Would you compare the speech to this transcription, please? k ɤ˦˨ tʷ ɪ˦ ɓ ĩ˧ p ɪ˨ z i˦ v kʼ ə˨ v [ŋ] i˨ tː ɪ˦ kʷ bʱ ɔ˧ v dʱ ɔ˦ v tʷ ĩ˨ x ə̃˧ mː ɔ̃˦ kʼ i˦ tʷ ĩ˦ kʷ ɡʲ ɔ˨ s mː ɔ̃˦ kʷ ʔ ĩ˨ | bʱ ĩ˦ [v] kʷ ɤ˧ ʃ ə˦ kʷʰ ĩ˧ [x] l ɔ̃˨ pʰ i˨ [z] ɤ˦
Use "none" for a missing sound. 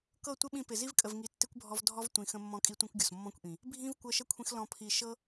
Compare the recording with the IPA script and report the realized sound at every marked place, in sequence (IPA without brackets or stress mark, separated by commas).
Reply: ŋ, v, x, ʃ